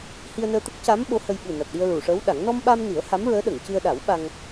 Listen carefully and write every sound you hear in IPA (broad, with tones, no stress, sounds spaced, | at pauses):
h i˧ ə̯ n əː˧ t̪ ə˦˥ k̚ c a˧˥ m ɓ o˧˥ h ə˧ j ɓ u˨˩ n a˨˩ t̚ ɗ i˧ ə̯ ɹ u˨˩˨ ʂ əː˧˥ w ɗ a˨˩˦ ŋ n ɔ˧ m ɓ a˧ m n i˨˩˦ ə̯ h a˧˥ m ɹ əː˧˥ ɗ ə˨˩˨ ŋ c ɨ˧ ə̯ ɗ a˨˩˦ w ɓ a˧ ŋ